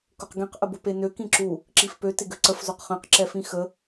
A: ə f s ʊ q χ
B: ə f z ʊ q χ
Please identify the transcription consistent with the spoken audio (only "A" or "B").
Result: B